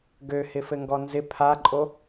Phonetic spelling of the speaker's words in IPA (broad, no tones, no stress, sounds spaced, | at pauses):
ɡ ø h ɪ f ɘ ŋ ɡ ɔ n z ɪ pʰ a ǃʼ o